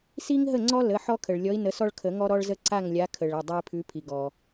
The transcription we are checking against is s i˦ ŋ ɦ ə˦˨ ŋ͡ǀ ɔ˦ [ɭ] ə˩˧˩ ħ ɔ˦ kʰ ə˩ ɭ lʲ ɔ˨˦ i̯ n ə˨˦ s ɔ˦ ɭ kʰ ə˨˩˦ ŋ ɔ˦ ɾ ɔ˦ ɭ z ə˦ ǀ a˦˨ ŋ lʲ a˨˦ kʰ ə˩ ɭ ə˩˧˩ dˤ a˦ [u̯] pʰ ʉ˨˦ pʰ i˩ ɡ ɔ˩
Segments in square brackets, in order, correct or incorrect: incorrect: l, incorrect: i̯

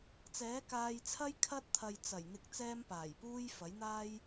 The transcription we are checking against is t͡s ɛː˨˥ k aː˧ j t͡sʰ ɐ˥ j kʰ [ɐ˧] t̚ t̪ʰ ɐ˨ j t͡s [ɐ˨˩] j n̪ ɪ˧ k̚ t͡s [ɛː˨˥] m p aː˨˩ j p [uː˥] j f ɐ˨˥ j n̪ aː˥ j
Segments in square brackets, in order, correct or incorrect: incorrect: ɐ˥, correct, incorrect: ɛː˥, correct

